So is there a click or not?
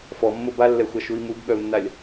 no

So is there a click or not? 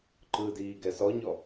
yes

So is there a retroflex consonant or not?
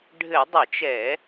yes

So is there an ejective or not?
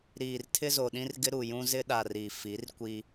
no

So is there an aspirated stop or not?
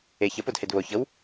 no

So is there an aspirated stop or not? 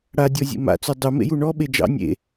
no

